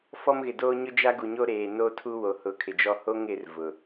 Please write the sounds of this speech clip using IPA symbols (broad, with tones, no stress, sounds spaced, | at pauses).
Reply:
f ɔ˦ m ɣ ɪ˨ d oː˦ ɲ ʊ˦ d͡ʒ a˦ ɡ u˨ ɲ o˦ ɾ eː˨ n o˦ tʰ u˦ w o˨ h ʊ˨˦ kʰ ɪ˨ d͡ʒ ɔ˦ h o˦ ŋ ɪ˨˦ r v ʊ˨